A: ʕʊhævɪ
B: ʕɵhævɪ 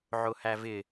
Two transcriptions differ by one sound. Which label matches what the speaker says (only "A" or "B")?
A